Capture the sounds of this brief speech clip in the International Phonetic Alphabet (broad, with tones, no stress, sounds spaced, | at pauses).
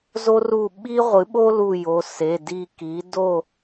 z o˥ r u˦˨ ɓ i˥ ʁʷ ɨ˩˥ ɓ o˥ l u˦˨ j o˩˧˩ s e˩˧˩ d i˦˨ k i˩˥ d o˦˨